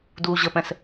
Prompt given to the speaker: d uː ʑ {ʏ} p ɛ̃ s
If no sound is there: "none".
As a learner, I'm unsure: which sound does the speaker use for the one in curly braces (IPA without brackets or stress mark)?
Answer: ə